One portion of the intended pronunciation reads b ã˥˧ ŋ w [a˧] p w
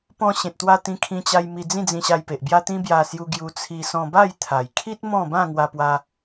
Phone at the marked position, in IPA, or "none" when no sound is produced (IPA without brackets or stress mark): a˧